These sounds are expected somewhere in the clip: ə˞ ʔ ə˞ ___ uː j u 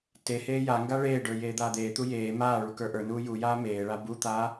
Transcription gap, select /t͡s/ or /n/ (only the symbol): n